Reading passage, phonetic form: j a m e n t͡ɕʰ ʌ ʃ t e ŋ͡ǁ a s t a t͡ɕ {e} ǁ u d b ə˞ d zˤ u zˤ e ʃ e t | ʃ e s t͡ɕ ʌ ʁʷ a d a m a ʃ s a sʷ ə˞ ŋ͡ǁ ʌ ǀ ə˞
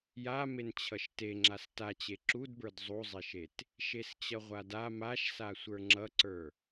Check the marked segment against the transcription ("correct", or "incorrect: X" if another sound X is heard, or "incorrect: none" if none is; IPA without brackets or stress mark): correct